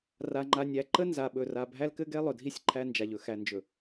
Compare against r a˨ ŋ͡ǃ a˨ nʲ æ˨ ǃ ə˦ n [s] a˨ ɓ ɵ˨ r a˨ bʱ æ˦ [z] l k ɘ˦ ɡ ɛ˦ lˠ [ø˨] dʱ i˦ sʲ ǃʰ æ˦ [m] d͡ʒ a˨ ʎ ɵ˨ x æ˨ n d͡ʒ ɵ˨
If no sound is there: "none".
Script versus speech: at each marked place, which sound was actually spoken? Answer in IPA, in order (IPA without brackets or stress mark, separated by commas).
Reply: z, none, ɵ˨, n